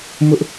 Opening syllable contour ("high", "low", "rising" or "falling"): high